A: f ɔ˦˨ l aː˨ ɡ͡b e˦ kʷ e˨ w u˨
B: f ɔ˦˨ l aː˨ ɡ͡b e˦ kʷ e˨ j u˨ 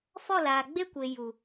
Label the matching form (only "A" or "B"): B